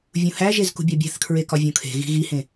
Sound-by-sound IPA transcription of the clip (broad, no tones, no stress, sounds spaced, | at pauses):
vʲ ũ h æ ʒ e z k ṳ bʲ ɒ bʲ æ̤ θ kʰ ɹ e k ɒ vʲ õ kʰ e̤ ɣ i̤ ɣ i h ẽ